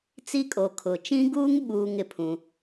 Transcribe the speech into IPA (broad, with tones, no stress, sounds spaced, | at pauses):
t͡s i˦ kʼ o˨ kʰ ʊ˨ t͡ʃ ĩ˦ ɡ uː˦ ŋ ɓ uː˨ ŋ ɪ˨ pʰ ũ˦